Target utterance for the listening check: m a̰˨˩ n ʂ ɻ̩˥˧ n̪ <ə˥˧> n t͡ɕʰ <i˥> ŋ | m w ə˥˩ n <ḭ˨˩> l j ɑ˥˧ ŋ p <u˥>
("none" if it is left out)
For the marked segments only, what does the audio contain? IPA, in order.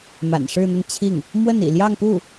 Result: ə˥˧, i˥˩, ḭ˨˩, u˥˩

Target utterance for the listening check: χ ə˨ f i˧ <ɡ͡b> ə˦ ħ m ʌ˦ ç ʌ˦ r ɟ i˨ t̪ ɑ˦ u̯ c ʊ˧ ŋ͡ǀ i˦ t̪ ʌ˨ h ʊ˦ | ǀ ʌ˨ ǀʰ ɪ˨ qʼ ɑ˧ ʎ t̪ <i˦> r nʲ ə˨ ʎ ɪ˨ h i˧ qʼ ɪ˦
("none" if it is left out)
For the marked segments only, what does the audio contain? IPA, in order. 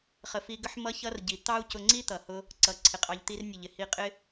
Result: ɡ, i˦

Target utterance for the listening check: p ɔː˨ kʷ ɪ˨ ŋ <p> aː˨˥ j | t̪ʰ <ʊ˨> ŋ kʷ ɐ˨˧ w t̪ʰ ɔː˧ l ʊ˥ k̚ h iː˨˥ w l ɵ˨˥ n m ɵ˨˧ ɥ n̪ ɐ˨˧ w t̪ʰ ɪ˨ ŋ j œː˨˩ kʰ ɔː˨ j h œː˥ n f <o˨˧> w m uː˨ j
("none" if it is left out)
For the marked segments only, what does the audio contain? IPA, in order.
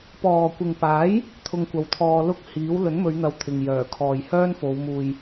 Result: p, ʊ˧, o˨˧

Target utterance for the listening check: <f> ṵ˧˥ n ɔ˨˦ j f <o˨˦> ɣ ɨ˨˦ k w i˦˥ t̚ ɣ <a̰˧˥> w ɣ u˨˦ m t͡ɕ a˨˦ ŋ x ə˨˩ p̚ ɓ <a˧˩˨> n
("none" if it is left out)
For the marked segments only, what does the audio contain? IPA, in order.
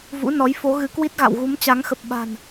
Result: v, o˨˦, a̰˧˨, a̤˨˩

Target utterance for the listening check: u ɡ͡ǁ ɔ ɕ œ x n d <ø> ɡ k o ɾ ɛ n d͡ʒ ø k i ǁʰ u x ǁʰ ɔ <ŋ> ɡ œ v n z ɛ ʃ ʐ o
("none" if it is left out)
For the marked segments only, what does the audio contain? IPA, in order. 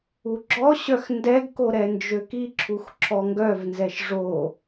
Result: ɛ, ŋ

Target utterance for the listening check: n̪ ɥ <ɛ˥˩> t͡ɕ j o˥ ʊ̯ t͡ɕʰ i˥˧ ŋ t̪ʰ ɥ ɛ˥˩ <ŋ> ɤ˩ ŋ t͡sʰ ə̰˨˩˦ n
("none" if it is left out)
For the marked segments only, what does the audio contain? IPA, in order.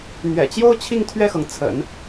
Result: ɛ̰˨˩, x

